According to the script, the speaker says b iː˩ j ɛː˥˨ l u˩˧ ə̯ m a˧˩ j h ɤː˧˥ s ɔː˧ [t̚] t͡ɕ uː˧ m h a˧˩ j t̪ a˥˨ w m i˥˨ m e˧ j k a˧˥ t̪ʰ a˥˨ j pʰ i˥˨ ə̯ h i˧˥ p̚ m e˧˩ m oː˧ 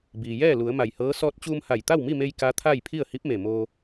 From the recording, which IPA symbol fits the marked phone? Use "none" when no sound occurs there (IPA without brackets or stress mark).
t̚